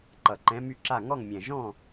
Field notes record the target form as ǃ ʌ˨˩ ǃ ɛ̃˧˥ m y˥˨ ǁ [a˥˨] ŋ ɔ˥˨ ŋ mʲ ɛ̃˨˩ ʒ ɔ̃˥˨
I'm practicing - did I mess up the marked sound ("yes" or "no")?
no